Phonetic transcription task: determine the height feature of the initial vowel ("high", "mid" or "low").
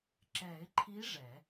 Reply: mid